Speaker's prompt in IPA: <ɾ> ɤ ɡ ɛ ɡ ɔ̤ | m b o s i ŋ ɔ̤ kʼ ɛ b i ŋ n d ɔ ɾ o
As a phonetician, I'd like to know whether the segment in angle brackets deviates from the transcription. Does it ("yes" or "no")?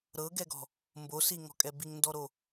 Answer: no